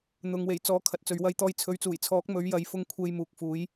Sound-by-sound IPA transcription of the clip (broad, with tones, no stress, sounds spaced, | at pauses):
n̪ ʊ˨ ŋ w e˨˩ j t͡s ɔː˨˥ kʰ ɐ˨ t̚ t͡s ɵ˨ ɥ w ɐ˧ j t̪ ɔː˧ j t͡sʰ ɵ˨ ɥ t͡s uː˨˩ j t͡sʰ ɔː˨˥ k̚ m ɵ˨˥ ɥ j ɐ˨˧ j f ʊ˧ ŋ kʷʰ e˧ j m uː˨ k̚ f uː˨˥ j